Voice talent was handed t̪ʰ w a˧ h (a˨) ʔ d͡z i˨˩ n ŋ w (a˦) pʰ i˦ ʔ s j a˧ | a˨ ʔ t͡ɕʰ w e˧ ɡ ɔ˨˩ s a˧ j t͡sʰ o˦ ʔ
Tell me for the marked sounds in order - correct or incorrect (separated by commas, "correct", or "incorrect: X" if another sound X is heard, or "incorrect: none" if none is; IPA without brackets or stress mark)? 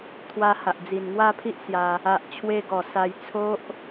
correct, incorrect: a˥˧